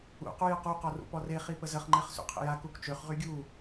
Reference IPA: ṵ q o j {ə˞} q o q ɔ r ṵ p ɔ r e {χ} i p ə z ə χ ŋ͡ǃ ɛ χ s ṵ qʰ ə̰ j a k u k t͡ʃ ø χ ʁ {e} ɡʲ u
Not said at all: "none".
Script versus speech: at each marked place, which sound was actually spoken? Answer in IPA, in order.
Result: ə, χ, y

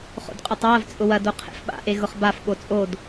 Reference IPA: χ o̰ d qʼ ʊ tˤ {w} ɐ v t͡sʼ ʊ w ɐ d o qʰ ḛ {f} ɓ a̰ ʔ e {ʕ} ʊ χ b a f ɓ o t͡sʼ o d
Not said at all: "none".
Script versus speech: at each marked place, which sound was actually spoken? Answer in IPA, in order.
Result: w, f, ɣ

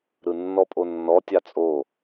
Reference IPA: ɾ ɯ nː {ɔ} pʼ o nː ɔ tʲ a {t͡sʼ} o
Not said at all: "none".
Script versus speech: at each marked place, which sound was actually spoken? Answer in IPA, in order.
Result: ɔ, t͡sʼ

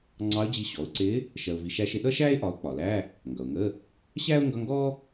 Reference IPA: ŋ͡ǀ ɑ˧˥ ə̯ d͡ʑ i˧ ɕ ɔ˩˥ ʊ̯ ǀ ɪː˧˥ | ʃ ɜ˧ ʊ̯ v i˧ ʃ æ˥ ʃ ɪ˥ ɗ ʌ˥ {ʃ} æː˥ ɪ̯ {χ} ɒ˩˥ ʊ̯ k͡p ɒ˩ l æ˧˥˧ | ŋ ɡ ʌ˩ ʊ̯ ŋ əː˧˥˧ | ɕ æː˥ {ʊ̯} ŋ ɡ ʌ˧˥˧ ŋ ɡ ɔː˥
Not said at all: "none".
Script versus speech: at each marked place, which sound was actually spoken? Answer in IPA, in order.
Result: ʃ, ʔ, ʊ̯

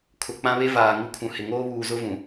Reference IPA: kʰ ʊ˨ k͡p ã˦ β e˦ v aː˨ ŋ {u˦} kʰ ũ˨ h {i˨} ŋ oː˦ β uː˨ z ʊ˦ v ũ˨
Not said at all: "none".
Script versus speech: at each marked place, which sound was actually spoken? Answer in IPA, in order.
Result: u˦, ɪ˨

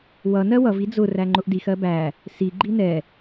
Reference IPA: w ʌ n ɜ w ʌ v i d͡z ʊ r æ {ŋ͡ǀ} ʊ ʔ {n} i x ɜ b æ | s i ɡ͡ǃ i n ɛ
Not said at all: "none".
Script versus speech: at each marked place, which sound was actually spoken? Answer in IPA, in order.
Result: ŋ͡ǃ, d

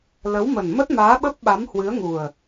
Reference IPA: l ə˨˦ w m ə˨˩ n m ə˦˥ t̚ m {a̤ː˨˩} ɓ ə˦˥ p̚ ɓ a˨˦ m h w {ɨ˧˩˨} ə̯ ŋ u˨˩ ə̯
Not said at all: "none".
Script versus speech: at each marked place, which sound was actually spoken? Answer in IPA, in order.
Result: aː˨˦, ɨ˨˦

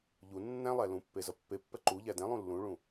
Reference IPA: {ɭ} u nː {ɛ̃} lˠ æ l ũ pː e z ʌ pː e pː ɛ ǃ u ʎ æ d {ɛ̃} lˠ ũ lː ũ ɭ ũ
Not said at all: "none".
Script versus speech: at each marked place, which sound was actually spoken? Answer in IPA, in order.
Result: ʎ, æ̃, ɛ̃

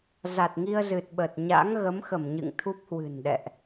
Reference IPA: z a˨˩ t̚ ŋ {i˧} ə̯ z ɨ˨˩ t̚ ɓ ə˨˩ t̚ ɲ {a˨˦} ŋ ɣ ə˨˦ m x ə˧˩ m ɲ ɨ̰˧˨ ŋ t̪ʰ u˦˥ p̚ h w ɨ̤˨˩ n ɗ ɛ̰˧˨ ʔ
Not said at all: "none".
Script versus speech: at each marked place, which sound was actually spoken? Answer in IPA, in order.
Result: i˧, a̰˧˥

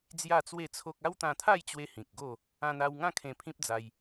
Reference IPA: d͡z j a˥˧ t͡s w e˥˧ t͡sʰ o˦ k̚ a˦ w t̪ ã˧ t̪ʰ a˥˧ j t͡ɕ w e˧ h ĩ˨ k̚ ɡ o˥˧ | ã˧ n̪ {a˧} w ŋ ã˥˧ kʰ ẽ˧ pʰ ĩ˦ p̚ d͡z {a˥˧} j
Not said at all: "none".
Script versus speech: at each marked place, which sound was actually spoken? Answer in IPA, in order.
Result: a˧, a˧

